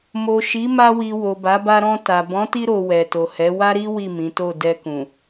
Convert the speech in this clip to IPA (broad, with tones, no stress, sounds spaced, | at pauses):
m o˨ ʃ i˨˦ m a˧ w i˨ w o˨ b a˨˦ b a˧ ɾ ɔ̃˧ t a˨ b ɔ̃˨˦ t i˧ ɾ o˨ w ɛ˨ t o˨ h ɛ˨˦ w a˦ ɾ i˦ w i˦˨ m ĩ˨˦ t o˦˨ d ɛ˧ k ũ˨